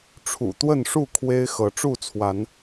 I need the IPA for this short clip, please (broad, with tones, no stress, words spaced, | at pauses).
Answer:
ʈ͡ʂʰṵ˨˩t̪wə˥˨nʂu˥˨ kʰwe˦ɪ̯xɤ˨˦ ʈ͡ʂu˥˨t͡sʰwa˨˦n